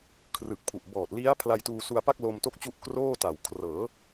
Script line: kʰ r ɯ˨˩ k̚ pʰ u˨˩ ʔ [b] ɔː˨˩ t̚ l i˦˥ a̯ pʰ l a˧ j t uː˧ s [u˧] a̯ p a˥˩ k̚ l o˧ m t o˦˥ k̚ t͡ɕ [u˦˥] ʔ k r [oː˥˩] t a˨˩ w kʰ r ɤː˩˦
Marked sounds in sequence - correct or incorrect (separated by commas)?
correct, correct, correct, correct